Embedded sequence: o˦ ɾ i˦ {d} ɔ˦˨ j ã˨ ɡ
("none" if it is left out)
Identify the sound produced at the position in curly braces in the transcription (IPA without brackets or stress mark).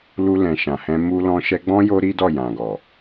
d